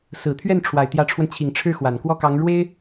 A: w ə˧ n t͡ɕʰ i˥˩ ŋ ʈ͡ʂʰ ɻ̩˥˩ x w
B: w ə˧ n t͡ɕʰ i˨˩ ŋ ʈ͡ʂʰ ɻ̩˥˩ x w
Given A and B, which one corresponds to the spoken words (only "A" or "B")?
B